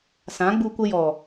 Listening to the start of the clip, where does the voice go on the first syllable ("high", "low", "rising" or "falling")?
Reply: rising